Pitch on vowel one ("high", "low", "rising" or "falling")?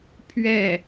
falling